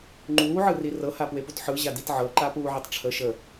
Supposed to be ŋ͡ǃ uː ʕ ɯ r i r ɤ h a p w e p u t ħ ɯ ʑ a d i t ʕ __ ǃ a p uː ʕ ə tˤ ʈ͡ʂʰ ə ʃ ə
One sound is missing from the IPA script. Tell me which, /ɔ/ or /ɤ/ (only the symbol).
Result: ɤ